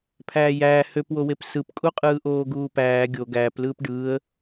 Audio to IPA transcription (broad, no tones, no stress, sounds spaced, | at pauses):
pʰ æː j æː h ø p w o w e p s ɯ p kʼ u qʼ ɯː ʔ oː ɡ uː p æː ɡʲ o ɡ æː p l ɯː p ɖ ɯː ə̯